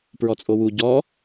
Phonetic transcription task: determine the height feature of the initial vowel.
mid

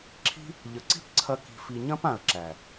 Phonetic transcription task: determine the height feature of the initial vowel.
high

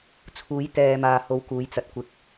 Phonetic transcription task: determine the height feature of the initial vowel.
high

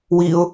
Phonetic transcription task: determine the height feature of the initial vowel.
high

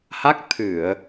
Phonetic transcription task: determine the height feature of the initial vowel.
low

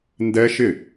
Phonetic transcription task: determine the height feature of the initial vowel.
mid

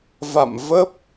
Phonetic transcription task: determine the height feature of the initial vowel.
low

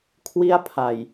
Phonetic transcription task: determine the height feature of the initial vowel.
high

